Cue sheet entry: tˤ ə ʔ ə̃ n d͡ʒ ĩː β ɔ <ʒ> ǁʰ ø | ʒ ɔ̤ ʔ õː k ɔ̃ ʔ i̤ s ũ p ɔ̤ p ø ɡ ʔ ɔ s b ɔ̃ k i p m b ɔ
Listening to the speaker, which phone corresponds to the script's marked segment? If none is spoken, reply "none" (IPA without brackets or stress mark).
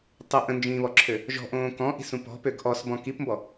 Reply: none